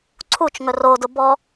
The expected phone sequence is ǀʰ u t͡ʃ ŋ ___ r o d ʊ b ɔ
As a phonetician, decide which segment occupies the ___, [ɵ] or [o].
ɵ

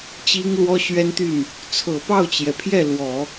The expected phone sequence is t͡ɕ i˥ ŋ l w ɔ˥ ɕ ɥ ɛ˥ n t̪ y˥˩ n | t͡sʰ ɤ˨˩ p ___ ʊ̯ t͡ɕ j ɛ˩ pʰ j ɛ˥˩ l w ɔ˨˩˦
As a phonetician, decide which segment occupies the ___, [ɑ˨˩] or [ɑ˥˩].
ɑ˥˩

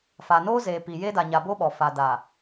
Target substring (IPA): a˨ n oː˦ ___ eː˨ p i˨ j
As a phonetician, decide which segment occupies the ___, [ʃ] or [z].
z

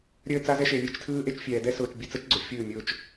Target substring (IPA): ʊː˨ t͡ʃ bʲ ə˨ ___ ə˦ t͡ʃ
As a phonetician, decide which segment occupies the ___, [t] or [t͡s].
t͡s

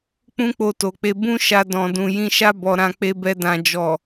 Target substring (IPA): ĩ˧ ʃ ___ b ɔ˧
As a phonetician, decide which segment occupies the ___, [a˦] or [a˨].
a˦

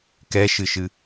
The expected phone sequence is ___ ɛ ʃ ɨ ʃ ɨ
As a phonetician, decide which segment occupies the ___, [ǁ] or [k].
k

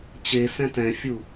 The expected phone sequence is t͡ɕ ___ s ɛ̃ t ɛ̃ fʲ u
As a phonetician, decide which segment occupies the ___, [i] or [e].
e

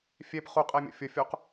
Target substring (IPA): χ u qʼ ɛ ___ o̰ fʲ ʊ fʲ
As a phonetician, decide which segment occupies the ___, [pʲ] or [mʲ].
mʲ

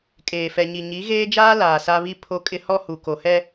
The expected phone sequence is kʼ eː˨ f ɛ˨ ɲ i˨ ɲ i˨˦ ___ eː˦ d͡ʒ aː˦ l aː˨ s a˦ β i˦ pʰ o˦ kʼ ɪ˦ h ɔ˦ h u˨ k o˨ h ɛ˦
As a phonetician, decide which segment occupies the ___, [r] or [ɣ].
ɣ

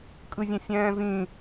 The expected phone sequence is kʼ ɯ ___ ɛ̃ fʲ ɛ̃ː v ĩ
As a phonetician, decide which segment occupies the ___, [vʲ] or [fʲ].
vʲ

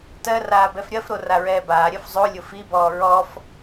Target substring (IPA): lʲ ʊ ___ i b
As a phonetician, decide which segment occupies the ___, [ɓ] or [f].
f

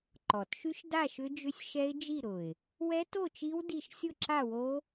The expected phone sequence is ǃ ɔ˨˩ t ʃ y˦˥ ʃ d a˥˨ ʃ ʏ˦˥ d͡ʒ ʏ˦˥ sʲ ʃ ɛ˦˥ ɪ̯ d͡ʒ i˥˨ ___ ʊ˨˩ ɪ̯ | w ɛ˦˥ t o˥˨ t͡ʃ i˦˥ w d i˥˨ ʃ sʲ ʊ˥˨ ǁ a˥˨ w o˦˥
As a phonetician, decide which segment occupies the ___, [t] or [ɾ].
ɾ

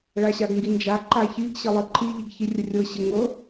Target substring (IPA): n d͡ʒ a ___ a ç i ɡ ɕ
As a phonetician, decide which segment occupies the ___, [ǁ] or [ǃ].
ǃ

